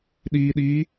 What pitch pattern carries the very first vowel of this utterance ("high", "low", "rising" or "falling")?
low